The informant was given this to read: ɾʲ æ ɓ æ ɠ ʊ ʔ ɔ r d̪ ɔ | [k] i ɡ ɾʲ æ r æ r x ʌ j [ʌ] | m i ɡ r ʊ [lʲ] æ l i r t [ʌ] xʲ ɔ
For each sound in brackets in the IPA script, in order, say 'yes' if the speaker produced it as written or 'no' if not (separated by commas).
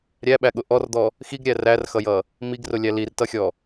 no, yes, yes, yes